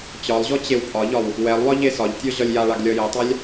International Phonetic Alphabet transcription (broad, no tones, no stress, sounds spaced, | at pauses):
t͡ɕ ɒ lˠ ʑ ɔ t͡ɕ e w pʼ ɒ ʎ ɒ w | w ɛ lˠ w ɒ ʎ e s ɒ ʎ tʲ ɔ ʑ ɒ lʲ j a ɭ a ɡ lʲ ɒ j ɛ tˤ a lʲ